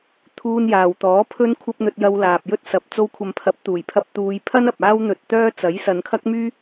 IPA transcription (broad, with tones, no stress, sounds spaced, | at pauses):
t̪ʰ uː˧ n j aː˨ w t̪ ɔː˨˥ pʰ ɵ˥ n kʷʰ ɐ˥ p̚ n̪ ɵ˧ t̚ j ɐ˧ w l aː˨ p̚ j ɵ˥ t̚ s ɐ˨ p̚ t͡s o˧ w kʷʰ ɐ˨ m pʰ ɐ˨˥ p̚ t̪ uː˨˩ j pʰ ɐ˧ p̚ t̪ uː˨˧ j pʰ ɐ˥ n ɐ˨ p̚ aː˥ w n̪ ɵ˧ t̚ t̪ œː˥ t͡s ɐ˨˥ j s ɐ˨˧ n kʰ ɐ˥ k̚ m yː˥